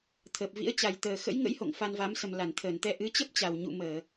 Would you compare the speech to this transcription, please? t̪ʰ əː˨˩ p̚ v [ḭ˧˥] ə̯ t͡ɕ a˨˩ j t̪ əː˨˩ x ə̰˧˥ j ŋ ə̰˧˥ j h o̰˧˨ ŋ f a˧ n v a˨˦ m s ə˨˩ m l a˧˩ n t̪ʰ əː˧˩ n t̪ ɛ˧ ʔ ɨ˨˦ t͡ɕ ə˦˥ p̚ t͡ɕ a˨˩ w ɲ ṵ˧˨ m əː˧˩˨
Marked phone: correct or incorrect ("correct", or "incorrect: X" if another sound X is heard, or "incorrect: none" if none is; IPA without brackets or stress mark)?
correct